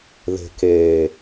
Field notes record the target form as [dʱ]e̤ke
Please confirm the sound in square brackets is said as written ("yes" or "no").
no